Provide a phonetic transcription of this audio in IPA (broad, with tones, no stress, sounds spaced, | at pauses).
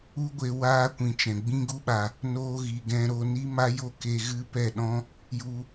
u˦ ɡʷ e˧ w aː˦ kʷ ĩ˨ t͡ʃ ɛ̃˨ ɡ͡b ĩ˦ ɡ u˦ ɓ a˨ | n o˦ ɣ i˨ ɡ ɛ̃˧ ɾ o˧ n i˦ m a˦ j o˦ k e˧ ɣ ɨ˦ p ɛ˦˨ ɗ ɔ̃˦ | j u˧